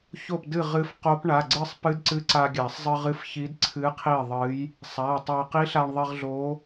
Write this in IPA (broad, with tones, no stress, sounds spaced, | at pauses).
ç o˥˩ p d ɨ˥˩ ʁ ɨ˧˥ f q o˧˥ p ɳ a˩˧˩ ɡ͡ǀ ɨ˥˩ sˤ p ɨ˧˥ d ǀ ɨ˧˥ ǀ a˧ ɡʲ a˨˩˦ sˤ zˤ ɨ˧ ʁ ɨ˧˥ f ç i˧˥ d ǀʰ ɨ˧˥ qʰ i˥˩ ðˤ ɨ˧˥ j | sˤ a˩˧˩ tˤ a˧ q i˧˥ ɬ a˧ ɳ ðˤ i˧ ʁ ɮ o˧˥